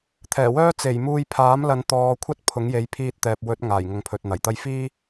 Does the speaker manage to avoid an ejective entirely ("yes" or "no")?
yes